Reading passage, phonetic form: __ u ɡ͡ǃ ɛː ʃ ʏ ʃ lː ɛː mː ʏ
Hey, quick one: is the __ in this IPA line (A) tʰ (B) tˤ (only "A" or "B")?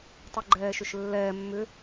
B